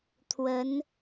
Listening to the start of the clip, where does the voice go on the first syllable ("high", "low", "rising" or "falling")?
rising